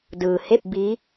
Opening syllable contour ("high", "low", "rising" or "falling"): low